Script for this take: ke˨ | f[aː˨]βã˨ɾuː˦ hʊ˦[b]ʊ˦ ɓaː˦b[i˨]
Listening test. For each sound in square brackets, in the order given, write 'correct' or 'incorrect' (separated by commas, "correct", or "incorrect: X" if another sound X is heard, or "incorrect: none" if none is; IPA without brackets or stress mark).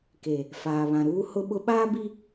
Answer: correct, incorrect: ɓ, incorrect: i˦